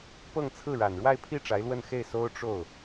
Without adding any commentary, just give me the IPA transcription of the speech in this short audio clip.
pɤ˥˧ŋt͡sʰɹ̩˥˩ɻa˨˩n ɻwa˥˧ɪ̯pʰi˥˩ ʈ͡ʂa˧˥ɪ̯lwə˥˧n xe˥˩ɪ̯so˥ʊ̯ ʈ͡ʂo˥˩ʊ̯

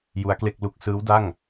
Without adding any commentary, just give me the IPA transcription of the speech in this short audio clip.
ju˦˥a̯kle˥˩k̚lu˦˥k̚ sɯː˦˥wda˥˩ŋ

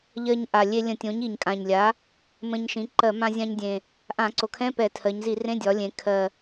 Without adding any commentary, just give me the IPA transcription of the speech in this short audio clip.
ʎɜ˧ɲʔa˨˩lʲe˧ lʲə̃˧˩˧tʲõ˩˥ɲ i˨˩ɲkʼã˨˩ɲlʲa˩˥ | mə̃˧ɲʃĩ˩˥ ǃɜ˧˩˧mã˧zʲã˧ɲdʲẽ˨˩ | ʔã˧˩˧ǀo˨˩kʰɛ̃˧˥˧ pɛ˧˩˧tʰɜ˩˧ɲ zi˧˩˧rẽ˧˥˧dʲɒ˩˧lʲẽ˩˧ kʰɜ˨˩

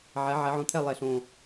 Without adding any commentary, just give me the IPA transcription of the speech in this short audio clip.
ʕɛ˩˧ʕɛ˩˧ʕõ˨˩t̪ʰɛ˦˨ lˠɛ˨˩ɬõ˨˩

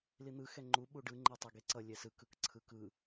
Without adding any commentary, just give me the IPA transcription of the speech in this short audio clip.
lin̪ɯ xɛŋ͡ǃu ɓuɖɯ ŋ͡ǃetˤɛɡeǀʌ lʲɛsɯ kɯkǀʰɯkɯ

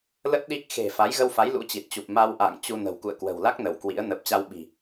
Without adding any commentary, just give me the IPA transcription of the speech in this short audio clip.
lə˦˥t̚ ɗi˦˥k̚ xe̤˨˩ fa˨˦jɣə˧wfa˨˦j lṵ˧˥t͡ɕi˨˩t̚t͡ɕu˨˩p̚ ma˧wʔa̰ː˧˨ŋ t͡ɕu˧nə̤˨˩w kṵ˧˨ə̯kwə̤˨˩wla˦˥k̚ nə˧˩wkwḭ˧˥ə̯ nəː˨˩p̚t͡ɕa˧wɓi̤˨˩

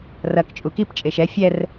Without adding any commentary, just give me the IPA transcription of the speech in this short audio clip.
rɐk t͡ʃʼukip t͡ʃʼeʃɛ fʲɛr

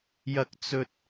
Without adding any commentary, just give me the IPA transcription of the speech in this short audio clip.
jɐ˧k̚t͡sɵ˧t̚

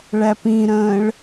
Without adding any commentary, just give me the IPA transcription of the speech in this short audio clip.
ɭæpĩɾə̃ːɭ

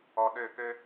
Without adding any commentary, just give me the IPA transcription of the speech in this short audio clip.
ɔ˨ɗø˦˨ kø˦

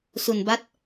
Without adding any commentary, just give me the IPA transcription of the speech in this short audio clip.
su˧nba˦˥t̚

